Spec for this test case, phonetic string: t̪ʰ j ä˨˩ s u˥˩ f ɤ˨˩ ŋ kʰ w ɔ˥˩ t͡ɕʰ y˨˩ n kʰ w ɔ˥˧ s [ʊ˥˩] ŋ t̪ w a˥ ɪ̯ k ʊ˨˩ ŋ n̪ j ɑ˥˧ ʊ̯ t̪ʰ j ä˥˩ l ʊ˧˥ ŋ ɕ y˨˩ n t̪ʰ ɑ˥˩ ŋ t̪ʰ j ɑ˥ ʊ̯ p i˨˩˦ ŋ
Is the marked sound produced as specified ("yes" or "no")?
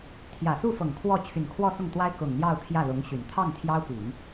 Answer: yes